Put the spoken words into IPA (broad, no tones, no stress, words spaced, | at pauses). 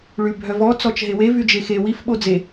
ɭybʱœvɔ t͡sɔt͡ʃɦewe vyd͡ʒexe wif ɓod͡ze